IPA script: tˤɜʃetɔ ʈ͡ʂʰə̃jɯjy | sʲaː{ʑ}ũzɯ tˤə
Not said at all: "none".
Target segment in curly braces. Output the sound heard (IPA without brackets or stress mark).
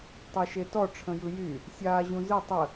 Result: ʑ